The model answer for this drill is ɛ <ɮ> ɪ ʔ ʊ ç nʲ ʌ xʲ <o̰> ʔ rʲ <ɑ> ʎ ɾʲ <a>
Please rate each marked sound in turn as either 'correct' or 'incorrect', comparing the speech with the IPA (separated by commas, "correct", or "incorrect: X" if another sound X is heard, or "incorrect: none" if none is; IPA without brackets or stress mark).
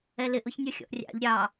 incorrect: l, incorrect: ɔ̰, incorrect: ɑ̰, incorrect: ɑ